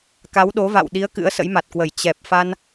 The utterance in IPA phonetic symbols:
k a˨˦ w ɗ o˨˦ v a̰˧˨ w ɗ i˨˦ ə̯ k ɨ̰˧˥ ə̯ s ə̰˧˥ j m a˨˩ t̚ k w ə˧˩ j t͡ɕ ɛ˨˩ p̚ f a˧ n

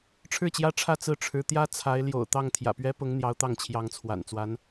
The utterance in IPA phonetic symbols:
ʈ͡ʂʰ ɻ̩˥˩ t͡ɕ j ä˥ ʈ͡ʂʰ ä˥˧ t͡s ɹ̩˥˩ ʈ͡ʂʰ ɻ̩˧˥ t̪ j ä˥ t͡sʰ a˧˥ ɪ̯ l j o̰˨˩ ʊ̯ t̪ ɑ˥˩ ŋ t̪ʰ j ä̰˨˩ p ɥ ɛ˥ p ʊ˧˥ ŋ n̪ j ɑ˧˥ ʊ̯ t̪ ɑ˥˩ ŋ t͡ɕʰ j ɑ˧˥ ŋ t͡sʰ w a̰˨˩ n t͡s w a˧˥ n

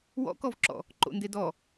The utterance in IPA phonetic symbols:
w ɔ̰ k ɔ v ǁ ɔ̰ | ǃ o̰ n d e d ɔ

